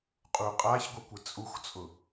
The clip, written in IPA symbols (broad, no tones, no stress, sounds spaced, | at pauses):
qʼ u qʼ a ç ɡʷ i kʷ ɪ t͡sʼ u x t͡sʼ ʊ